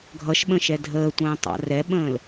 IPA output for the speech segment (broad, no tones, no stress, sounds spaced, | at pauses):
ɡʱ ʌ ʃ ɓ ə̃ ʃ ɛ dʱ əː tʷ ə̃ː tˤ ɑ̰ r ɛ ɓ ə̃ː l